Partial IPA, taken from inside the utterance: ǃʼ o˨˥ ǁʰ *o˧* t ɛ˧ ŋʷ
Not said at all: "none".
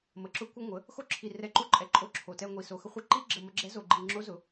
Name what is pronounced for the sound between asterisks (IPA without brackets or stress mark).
o˨˩